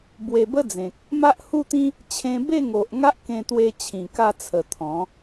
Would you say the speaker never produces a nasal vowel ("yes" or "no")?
no